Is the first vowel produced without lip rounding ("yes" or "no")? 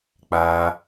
yes